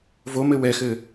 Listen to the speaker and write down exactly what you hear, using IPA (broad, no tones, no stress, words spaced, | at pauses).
vomɘ wɛxɘ